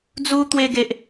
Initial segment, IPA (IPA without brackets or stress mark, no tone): d͡z